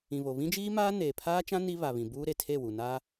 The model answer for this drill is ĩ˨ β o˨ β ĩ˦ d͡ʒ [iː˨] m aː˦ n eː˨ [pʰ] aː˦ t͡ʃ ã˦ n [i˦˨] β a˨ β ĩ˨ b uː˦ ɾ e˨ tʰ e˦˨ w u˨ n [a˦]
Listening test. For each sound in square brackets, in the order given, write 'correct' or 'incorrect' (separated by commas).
incorrect, correct, incorrect, correct